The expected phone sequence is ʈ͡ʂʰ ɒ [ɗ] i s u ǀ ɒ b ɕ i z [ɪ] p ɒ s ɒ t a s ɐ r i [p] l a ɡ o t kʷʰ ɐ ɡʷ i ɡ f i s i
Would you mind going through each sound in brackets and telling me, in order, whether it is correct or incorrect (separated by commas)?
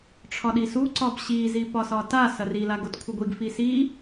correct, incorrect, incorrect